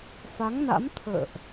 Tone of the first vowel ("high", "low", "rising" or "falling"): rising